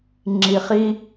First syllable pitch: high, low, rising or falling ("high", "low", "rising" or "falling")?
low